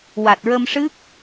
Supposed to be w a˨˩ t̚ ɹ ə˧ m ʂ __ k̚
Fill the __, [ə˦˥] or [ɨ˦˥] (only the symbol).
ɨ˦˥